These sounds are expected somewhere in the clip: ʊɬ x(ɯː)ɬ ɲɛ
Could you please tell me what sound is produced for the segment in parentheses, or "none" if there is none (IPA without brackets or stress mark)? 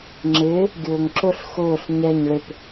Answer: ʊː